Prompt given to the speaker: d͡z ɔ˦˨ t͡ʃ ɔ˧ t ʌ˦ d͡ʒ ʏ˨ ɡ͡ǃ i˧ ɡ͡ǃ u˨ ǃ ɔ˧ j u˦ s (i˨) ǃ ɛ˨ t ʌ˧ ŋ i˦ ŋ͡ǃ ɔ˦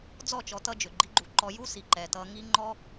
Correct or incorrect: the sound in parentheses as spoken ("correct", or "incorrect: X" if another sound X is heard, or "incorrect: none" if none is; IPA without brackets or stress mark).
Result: correct